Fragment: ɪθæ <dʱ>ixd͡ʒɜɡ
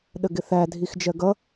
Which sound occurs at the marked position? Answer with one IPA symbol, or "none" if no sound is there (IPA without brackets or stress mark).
dʱ